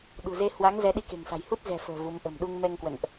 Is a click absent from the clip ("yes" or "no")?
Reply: yes